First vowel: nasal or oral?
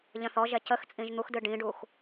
nasal